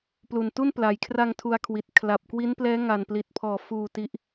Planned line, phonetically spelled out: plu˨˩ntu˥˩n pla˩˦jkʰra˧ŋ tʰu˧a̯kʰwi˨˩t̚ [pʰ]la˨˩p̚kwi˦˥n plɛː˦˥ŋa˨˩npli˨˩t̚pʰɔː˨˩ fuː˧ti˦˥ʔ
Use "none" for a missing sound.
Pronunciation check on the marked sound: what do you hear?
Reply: kʰ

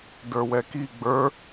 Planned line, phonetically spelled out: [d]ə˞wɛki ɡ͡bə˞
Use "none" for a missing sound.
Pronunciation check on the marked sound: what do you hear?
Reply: d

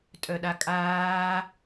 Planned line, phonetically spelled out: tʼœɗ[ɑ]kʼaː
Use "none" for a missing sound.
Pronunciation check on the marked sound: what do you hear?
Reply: a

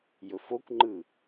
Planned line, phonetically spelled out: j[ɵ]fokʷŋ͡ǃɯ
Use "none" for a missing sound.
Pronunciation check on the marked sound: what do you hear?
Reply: ɵ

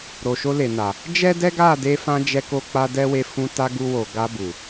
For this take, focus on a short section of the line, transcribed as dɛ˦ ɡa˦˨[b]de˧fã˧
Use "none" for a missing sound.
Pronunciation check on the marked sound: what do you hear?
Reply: none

